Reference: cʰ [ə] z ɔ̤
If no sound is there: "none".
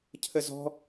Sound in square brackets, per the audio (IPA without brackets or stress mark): ə